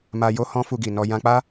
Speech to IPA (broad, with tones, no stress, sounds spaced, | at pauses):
m a˧ j o˦ h ɔ̃˦ f u˧ ɡ i˨ n ɔ˧ j ã˧ k͡p a˦